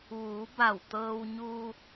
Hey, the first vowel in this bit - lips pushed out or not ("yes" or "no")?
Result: yes